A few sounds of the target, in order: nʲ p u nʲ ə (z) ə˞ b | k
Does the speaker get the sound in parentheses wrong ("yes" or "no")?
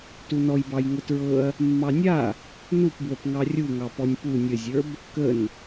yes